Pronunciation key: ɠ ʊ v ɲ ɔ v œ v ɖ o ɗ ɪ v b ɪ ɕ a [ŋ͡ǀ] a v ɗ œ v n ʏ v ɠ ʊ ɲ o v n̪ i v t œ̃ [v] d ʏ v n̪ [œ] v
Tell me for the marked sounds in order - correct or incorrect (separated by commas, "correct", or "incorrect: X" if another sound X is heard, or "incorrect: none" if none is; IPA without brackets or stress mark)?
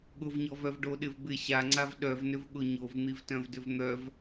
correct, correct, correct